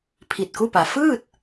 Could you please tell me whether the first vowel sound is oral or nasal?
oral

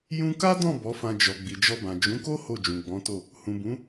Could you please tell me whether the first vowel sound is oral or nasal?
nasal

